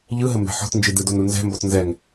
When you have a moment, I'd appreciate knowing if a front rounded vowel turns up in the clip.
no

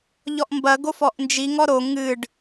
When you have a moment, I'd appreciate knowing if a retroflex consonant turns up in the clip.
yes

